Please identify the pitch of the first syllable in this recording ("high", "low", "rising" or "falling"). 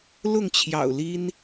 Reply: falling